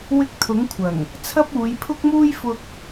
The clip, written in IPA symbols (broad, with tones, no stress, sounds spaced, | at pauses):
w ɪ˥ k̚ t̪ʰ ʊ˨˥ ŋ kʷʰ ɐ˨˩ ŋ | t͡sʰ ɐ˥ p̚ uː˨˧ j pʰ ʊ˥ k̚ m uː˥ j f ʊ˧ k̚